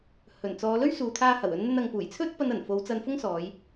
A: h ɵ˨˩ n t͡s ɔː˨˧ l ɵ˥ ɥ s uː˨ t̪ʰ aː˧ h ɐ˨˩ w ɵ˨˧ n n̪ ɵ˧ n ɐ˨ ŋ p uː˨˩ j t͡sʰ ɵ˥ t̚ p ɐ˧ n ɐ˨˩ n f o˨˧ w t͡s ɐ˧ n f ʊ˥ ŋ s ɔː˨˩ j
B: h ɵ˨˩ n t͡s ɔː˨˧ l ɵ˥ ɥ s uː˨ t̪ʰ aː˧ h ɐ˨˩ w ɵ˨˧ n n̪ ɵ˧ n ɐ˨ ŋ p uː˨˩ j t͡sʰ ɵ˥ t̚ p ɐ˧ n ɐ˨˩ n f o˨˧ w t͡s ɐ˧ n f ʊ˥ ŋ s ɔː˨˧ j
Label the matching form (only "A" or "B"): B